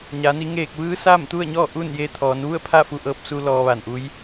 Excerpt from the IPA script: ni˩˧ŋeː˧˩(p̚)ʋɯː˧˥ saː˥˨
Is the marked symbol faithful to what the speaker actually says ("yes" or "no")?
no